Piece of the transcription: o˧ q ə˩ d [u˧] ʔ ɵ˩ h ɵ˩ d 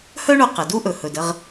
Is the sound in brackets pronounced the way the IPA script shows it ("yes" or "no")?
no